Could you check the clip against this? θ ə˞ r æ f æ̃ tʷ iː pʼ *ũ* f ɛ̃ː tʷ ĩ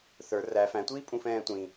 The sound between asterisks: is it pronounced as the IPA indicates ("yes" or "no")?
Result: yes